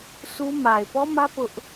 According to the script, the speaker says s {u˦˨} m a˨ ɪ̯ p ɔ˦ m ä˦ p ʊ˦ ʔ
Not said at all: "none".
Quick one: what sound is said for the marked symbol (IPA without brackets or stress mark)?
u˦